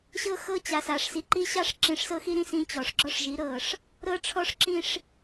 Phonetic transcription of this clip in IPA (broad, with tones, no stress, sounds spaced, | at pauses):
ɕ ɤ˦ x ɤ˦ t͡ɕ a˨ s a˨ ʂ s i˨ ǃ i˦ ɕ ɑ˦ ʂ ǁ ĩ˨ ʂ s ɤ˦ x i˦ ɾ ĩ˦ s ĩ˦ t͡ɕ ɔ˨ ʂ ɡ͡ǁ ɔ˦ ʂ ʒ i˨˦ ɾ ɤ˦˨ ʂ | ɾ ɤ˦ ʈ͡ʂʰ ɔ˦ ʂ ǁ ĩ˦ ʂ